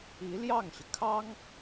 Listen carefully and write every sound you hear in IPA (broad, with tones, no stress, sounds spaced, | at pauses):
i˧˥ l j ɑ˥˩ ŋ ɕ y˩ kʰ ɑ˥ ŋ